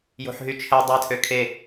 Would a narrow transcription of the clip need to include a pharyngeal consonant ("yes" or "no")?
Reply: yes